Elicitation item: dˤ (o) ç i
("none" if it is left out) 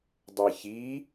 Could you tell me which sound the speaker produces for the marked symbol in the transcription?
ɤ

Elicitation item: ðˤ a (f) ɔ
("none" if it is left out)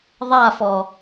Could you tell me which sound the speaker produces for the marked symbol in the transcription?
f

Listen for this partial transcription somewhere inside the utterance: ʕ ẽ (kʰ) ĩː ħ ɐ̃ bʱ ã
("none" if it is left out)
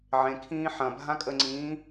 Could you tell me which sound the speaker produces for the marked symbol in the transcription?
kʰ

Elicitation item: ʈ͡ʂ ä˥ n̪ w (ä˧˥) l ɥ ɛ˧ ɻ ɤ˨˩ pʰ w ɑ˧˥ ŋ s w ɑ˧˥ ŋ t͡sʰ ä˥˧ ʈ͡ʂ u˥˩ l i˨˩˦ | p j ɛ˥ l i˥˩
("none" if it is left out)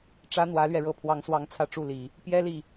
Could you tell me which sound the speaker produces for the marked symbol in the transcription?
ä˧˥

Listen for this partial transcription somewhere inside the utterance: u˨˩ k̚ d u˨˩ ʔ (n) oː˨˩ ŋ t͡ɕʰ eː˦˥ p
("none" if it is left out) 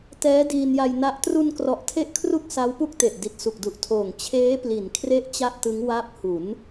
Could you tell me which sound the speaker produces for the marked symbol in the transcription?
tʰ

